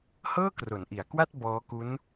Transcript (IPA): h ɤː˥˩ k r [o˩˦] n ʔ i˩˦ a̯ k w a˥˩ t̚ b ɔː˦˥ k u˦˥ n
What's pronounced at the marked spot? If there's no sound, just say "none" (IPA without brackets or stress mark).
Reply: o˩˦